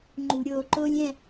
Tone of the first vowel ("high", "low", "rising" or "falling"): low